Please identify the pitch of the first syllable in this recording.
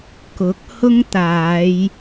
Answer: rising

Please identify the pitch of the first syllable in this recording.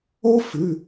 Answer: high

